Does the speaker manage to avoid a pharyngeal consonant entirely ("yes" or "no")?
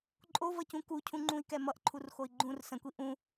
yes